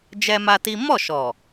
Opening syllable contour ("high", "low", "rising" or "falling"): high